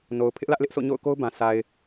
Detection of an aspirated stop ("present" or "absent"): present